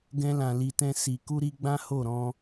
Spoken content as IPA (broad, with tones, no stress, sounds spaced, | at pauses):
ɡ ɛ̃˧ l ã˨ l i˨ t ɛ̃˧ s i˨ k u˧ ɾ i˧ ɡ͡b ã˦ h o˦˨ ɾ ɔ̃˧